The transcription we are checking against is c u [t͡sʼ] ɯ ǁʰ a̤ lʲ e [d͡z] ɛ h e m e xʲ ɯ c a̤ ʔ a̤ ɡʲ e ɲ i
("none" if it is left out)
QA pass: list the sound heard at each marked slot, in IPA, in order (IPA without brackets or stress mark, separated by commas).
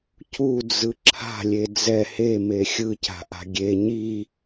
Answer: d͡z, d͡z